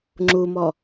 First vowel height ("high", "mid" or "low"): high